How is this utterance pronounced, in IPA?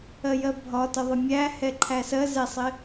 ɜjɜbʱɒ təðˤɪmʲæ hɛǃʰæsɜ zɛsˤɪ

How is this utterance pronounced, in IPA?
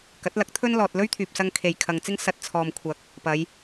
kɐ˨˥t̚lɐ˨˥k̚t̪ʰɵ˥nlɔː˨t̚ lɵ˥ɥt̪ʰyː˨p̚sɐ˧ŋ kʰe˨jkʰɐ˨ŋt͡sɪ˥ŋ sɐ˨t̚ t͡sʰɔː˨mkʷʰɐ˨˥k̚ | pɐ˨˧j

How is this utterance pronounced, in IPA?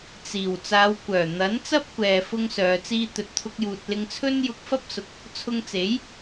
t͡siː˨˩w t͡saː˨˧wkʷœː˨˩n̪ɐ˨˥nt͡sɐ˥p̚ kʷɛː˧fʊ˥ŋsœː˨˧ t͡siː˧t̪ɵ˨t̚ t̪ʰʊ˥k̚juː˧t̚ lɪ˧ŋt͡sʰɵ˥n jʊ˧k̚fɐ˥p̚sʊ˨˥k̚ | t͡sʰʊ˧ŋt͡se˨˥j

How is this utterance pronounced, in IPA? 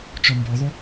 t͡ʃɔmbɔðˤo

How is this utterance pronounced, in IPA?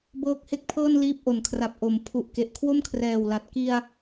bɤː˦˥k̚he˥˩k̚pʰɤː˥˩nliː˦˥p̚ ʔo˨˩nkʰra˨˩p̚ ʔo˩˦m pʰu˨˩ʔ ke˨˩ʔkʰwo˥˩mkʰrɛː˨˩wla˨˩t̚ ki˧a̯

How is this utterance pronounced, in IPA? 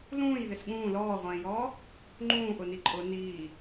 lũːjðɪs ɠũː lɔːʁʷɛ̃ːjɔː | ŋ͡ǃũːʔʊni ǃʼʊ niː

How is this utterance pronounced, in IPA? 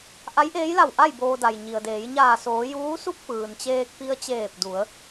ʔa˧˥jʔeː˧˥jla˧˩wʔa˥˨j boː˧da˩jɲi˩ə̯deː˩˧j ɲaː˧˩soː˩˧ juː˧˥su˥˨k̚pɯː˩n t͡ɕeː˧k̚pi˧ə̯t͡ɕeː˧˩p̚du˩˧ə̯

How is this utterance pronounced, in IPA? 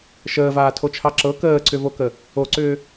ʃəːvaːtʰot͡ʃʰɑ ǁɤ kəːǀʏvokə | oǀʏː

